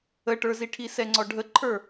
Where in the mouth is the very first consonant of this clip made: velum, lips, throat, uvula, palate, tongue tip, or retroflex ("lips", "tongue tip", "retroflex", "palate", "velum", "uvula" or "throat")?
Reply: retroflex